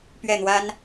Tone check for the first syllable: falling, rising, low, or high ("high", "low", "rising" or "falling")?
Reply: falling